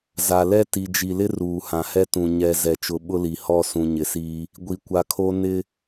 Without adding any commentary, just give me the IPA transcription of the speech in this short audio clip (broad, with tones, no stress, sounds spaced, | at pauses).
z a˨ l ɛ˦ t i˨ d͡ʒ i˨ l ɪ˦ r uː˨ h ã˨ h ɛ˦ t ũ˨ ɲ ɛ˨ z ɛ˨ t͡ʃ ʊ˨˦ ɓ ʊ˦ l i˨ h ɔ˦˨ s ũ˨ ɲ ɪ˨ s iː˦ | ɡʷ i˨ kʷ a˨ kʰ o˦ n ɪ˦